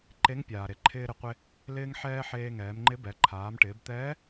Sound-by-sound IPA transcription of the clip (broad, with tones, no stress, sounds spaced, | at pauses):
ǃ e˧˥ ŋ pʲ aː˩ ɾ e˩ ǃʰ ɪː˧ ɾ ɪ˩ qʷ ɪ˧ | l ɪː˧ ŋ ħ ɛː˧ ħ eː˧ ŋ ɛː˩˧ m ŋ͡ǃ ɪ˧˥ b ɛ˩˧ ǃʰ aː˩˧ m ʈ ɪː˩˧ b t̪ ɛː˧˥